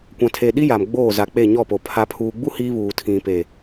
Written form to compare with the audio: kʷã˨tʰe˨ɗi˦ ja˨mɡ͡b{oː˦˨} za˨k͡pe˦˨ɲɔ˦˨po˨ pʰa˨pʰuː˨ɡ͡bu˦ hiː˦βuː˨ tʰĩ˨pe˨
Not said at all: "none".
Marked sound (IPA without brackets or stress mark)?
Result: oː˦˨